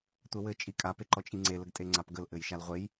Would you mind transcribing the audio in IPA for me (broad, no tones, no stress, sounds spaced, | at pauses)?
tʷ ɛ w ɘ t͡ʃʼ i kʼ a p e ǃ ɔ t͡ʃʼ i ŋ͡ǀ e l ə ɡ tʼ e ŋ͡ǀ a p ɡ ə l ʔ ɘ j ʃ a l ʁʷ e j